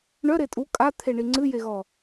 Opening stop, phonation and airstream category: ejective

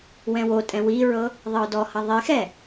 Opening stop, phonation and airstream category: ejective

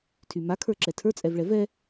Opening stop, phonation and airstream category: aspirated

